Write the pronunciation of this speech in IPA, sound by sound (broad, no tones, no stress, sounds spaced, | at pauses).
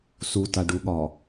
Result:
s u t a ɖ u ɠ ɒ